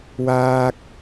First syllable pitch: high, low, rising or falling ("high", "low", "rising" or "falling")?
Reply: high